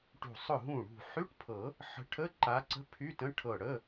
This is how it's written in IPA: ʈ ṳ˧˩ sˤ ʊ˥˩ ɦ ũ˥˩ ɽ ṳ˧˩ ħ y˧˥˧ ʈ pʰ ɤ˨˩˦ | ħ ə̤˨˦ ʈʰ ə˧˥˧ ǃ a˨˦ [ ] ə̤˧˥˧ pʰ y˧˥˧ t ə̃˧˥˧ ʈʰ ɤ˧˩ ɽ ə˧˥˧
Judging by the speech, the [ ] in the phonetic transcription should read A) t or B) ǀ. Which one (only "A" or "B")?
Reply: B